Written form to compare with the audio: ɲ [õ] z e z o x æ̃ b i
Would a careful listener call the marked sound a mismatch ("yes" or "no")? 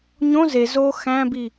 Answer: no